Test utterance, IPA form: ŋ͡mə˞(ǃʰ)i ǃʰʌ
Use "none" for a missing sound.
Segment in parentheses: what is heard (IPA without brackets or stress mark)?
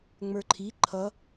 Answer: ǃʰ